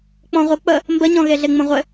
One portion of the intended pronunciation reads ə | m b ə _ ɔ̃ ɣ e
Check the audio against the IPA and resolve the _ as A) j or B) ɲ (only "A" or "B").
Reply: B